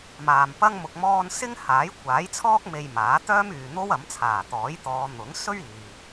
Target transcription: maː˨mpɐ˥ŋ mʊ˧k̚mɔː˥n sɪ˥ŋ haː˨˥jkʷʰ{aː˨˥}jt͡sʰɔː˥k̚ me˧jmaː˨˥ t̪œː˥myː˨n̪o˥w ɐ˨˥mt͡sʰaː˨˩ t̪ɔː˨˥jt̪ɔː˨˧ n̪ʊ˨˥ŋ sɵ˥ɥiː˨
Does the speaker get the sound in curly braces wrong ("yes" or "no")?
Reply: no